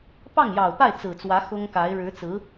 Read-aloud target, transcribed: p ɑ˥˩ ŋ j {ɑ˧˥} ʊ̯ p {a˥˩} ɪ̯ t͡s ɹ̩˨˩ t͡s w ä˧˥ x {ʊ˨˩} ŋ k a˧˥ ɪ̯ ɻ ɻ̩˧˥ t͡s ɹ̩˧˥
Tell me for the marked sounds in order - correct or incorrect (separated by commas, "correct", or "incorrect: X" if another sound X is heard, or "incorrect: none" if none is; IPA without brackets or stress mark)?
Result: incorrect: ɑ˨˩, correct, incorrect: ʊ˥